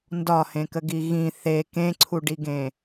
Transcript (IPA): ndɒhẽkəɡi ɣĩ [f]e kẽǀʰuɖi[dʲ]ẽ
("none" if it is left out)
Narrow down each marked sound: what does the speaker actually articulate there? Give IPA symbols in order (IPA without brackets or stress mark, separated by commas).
θ, ɡ